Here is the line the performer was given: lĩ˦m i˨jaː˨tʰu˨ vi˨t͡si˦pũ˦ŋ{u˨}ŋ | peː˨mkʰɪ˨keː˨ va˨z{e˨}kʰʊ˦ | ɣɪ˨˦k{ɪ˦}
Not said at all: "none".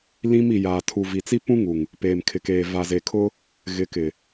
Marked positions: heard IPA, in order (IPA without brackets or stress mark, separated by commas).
u˨, e˨, ɪ˨